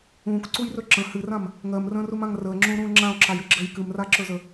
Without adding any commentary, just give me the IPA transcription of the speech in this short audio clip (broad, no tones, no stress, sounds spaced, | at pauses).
ũː k ǀ u j r ɵ ǁ ə̃ h ɨ r ã m | ŋ ɜ m r ə̃ː r u m ã ŋ r əː ŋ͡ǁ ũː ɾ ũː ŋ͡ǁ ã o̯ ǁ a j ɨ ɡ͡ǁ əː j k ɨ m r a ǁ ɵ z ə